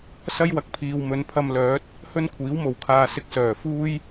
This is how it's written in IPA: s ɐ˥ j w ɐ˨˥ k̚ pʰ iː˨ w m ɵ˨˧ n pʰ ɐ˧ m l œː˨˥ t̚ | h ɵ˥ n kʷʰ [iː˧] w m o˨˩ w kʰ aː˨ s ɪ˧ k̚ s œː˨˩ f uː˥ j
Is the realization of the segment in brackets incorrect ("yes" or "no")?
yes